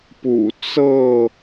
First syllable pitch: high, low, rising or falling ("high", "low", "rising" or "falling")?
low